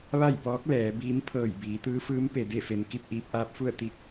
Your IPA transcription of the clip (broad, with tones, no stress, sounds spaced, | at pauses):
ʋ a˥˨ j p ɔː˧˥ k̚ l ɛː˩˧ b iː˧˥ m pʰ ɤː˧˩ j b iː˩˧ t̪ ɯː˧˥ f ɯː˧˥ m p e˩ d e˥˨ f e˩ n k i˥˨ p̚ ʔ iː˧ p̚ ʔ aː˧˥ p̚ f u˥˨ ə̯ t̪ i˧˥ k̚